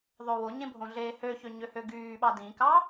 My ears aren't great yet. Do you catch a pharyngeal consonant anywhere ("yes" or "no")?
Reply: no